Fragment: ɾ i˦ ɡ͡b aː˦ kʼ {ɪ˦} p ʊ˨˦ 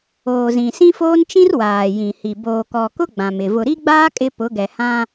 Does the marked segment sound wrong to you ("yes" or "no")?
no